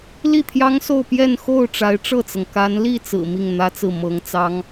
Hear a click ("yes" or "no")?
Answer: no